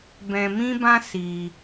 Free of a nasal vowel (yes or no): no